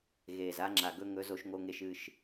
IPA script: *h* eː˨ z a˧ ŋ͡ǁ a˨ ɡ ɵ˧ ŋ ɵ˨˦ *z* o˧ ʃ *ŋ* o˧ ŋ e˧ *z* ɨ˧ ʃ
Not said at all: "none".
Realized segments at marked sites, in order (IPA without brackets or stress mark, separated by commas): ɣ, z, ŋ, ʃ